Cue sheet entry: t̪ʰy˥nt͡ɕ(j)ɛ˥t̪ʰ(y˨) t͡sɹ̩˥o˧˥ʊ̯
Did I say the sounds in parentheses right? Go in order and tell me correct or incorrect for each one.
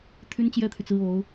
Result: correct, correct

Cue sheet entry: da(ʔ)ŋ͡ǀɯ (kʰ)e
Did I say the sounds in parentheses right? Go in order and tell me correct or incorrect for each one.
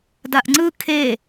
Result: correct, correct

